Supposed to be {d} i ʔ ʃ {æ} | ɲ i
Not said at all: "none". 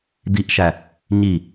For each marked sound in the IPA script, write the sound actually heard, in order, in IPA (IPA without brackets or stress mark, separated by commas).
d, æ